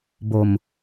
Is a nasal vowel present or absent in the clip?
absent